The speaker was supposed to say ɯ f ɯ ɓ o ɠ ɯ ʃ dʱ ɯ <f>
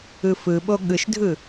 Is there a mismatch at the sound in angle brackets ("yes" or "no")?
yes